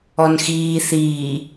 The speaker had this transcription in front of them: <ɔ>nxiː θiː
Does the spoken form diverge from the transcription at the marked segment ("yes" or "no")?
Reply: no